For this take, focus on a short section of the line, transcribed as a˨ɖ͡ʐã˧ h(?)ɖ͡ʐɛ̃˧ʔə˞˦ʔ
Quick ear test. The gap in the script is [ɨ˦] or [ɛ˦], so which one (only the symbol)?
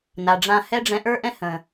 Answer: ɛ˦